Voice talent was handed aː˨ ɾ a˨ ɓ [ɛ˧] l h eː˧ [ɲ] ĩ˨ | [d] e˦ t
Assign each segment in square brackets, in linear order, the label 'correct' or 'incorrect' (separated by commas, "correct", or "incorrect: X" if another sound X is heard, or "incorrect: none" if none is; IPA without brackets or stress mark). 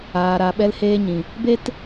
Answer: correct, correct, incorrect: b